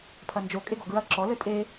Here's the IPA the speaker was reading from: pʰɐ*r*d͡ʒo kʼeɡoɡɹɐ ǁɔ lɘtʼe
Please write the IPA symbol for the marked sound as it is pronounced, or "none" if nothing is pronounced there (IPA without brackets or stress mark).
n